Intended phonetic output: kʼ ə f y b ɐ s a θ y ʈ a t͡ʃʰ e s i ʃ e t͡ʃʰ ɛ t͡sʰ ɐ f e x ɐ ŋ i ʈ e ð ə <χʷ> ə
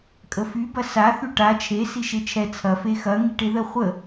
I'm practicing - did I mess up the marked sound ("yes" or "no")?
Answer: no